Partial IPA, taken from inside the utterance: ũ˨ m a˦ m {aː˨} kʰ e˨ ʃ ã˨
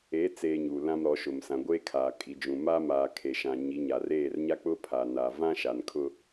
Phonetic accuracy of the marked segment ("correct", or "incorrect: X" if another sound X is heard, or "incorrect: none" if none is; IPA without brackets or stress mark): correct